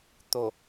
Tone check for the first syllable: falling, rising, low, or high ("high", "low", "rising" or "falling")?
low